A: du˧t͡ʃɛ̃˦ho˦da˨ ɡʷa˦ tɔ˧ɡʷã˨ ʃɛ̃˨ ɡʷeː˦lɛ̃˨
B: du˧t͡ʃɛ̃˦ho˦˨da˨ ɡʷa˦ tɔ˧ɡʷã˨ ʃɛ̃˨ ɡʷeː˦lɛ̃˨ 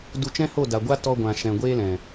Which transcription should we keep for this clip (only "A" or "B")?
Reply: B